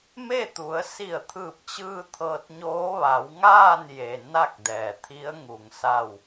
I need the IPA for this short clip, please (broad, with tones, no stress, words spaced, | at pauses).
me˥˨t̪u˩˧ə̯ si˧˩ə̯t̪ʰɯː˧˩p̚t͡ɕɯː˧ t̪ʰɤː˧t̚ɲoː˧˥ ʋa˩˧wŋaː˥˨nje˩ na˥˨k̚dɛː˩ t̪ʰi˧˥ə̯ŋu˩ŋ sa˥˨w